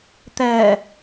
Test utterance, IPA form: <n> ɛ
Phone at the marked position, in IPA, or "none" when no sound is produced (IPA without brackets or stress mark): t̪